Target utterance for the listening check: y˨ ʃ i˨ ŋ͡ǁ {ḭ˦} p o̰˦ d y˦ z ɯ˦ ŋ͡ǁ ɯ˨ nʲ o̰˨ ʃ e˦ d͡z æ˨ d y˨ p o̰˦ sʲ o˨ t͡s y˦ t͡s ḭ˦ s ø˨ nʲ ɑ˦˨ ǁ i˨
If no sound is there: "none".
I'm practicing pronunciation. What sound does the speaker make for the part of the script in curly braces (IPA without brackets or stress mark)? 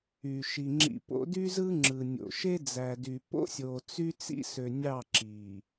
ḭ˨